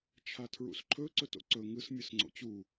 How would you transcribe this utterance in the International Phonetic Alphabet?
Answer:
t͡ʃʰ a tʰ ɹ ṵ s ǃʰ ɵ ǀ ɵ t o̰ ǀ ɵ ŋ ɯ s mʲ ɯ s ŋ͡ǀ o̰ t͡ɕ u

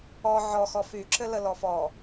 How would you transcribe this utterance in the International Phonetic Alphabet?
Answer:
ɔ ʕ ɔ x ɔ f y ǁ ɘ l ə l ɔ f ɔ

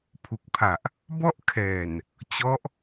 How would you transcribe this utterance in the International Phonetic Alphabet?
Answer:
pʰ u˨˩ k̚ pʰ a˨˩ ʔ | b ɔ˥˩ ʔ kʰ ɛː˨˩ n | t͡ɕ ɔ˦˥ ʔ

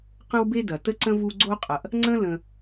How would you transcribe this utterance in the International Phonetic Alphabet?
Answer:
q ə̃˦ w b e˦ d ɐ˩ t ə˥ ǀ ə̃˥ v u˦ ɡ͡ǀ o˦ qʼ ɐ˨ ʔ | ŋ͡ǀ ə̃˥ l ə̃˨

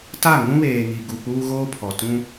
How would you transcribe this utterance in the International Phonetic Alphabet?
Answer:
t a˦˨ ŋ ũ˦ β eː˨ ŋ i˨ ɡ u˨ k͡p uː˦ ɣ oː˦ pʰ ɔ˨ t ũ˦

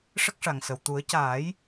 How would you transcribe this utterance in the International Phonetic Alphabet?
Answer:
ʂ ə˦˥ k̚ ʂ a˨˩ ŋ s ə˨˩ w t̪ u˨˩˦ ə̯ c aː˨˩˦ j

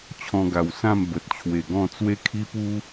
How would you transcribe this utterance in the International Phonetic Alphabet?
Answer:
t͡ɕʰ ɔ̃˧ ɡ a˨˩ w s ã˥˧ m b ə˨ t̚ t͡ɕʰ w e˨˩ ɡ ɔ̃˥˧ t͡s w e˦ kʰ i˦ p u˦

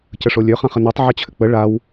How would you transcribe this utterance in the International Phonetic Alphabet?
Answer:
c ə ʂ o lʲ ø χ ã χ ə n u tˤ ʕ ə t͡ɕʰ ʏ k͡p ə ɭ a w

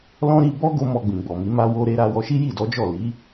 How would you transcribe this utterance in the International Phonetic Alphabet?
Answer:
l ɔ̃˦ ɾ i˧ b ɔ˦ ɡ o˧ m ɔ˧ ɡ͡b ĩ˨ ɡ͡b ɔ˨ m i˨˦ m a˧ w o˧ ɾ e˧ ɾ a˧ w ɔ˧ ʃ i˦ j i˦˨ d ɔ˨˦ d͡ʒ ɔ˦˨ l i˨˦

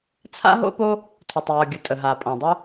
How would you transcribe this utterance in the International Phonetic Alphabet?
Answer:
t͡sʰ a̰˥ ɦ o̰˥ p o˥ | tʰ ʊ˩ tˤ j ɔ˩ ɡʲ ə˩ tʼ ə˩ ɦ a˩ pʼ ɔ̃˩ dˤ ʊ˥

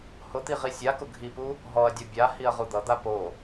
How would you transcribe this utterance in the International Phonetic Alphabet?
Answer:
h ʊ t̪ i ʁ i sʲ a k ʊ ɡʱ i p u | ɦ ɔ ɐ̯ dʲ ʌ bʲ a h i ɐ̯ ʁ u d̪ ʌ d̪ a p o

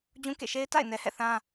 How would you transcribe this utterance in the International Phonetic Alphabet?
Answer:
d͡ʑ ũ˦ k ḛ˦˨ ʃ e˦ ɪ̯ t a̰˦˨ ɪ̯ n ɛ˨ h ɛ̰˦˨ θ ã˦

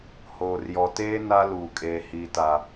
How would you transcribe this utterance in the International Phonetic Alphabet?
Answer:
h oː˨ r j ɔ˨ t eː˦ n a˦ l uː˨ kʼ eː˨ h iː˨ t a˨

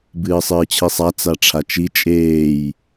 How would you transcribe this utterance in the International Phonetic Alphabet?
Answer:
b ɨː sˤ ɨː t͡ɕʰ i sˤ a t͡s a ʈ͡ʂʰ a t͡ʃ i t͡ʃʼ eː j

